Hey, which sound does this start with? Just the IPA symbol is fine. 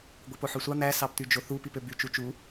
ɡʷ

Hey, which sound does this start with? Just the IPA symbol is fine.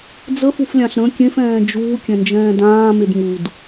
d͡z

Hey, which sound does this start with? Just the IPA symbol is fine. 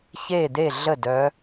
ç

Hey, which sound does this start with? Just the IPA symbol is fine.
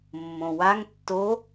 mː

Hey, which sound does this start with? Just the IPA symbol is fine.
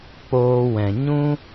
k͡p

